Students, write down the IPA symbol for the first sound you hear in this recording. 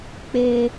k͡p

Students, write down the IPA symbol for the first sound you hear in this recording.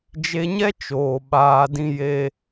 d͡ʒ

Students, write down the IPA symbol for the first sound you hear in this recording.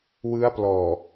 w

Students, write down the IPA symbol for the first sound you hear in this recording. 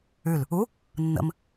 ʉ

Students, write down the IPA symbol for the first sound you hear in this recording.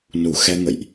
n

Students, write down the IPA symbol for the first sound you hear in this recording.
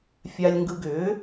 fʲ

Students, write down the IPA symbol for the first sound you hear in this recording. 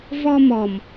v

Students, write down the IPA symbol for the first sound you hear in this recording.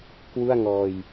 k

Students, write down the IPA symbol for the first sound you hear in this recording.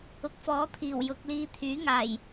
ʊ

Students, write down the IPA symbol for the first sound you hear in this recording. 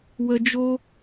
w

